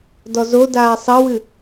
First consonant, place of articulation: alveolar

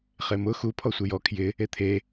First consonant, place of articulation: uvular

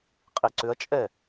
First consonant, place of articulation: uvular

